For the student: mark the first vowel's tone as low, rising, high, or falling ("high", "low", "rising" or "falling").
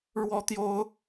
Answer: high